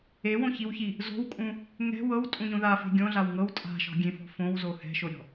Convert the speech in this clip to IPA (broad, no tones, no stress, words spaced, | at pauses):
ewõçiwçi | zo̤wkʼũ | ŋɛ̤ wɤwtʼũɲõ ðafe̤ ɡʲõɮaw ŋɤw tʼa̤ʃɔ̤ɡʲẽfɔ̤ fõwzo hɛ̤ʃoɾʲɔ̤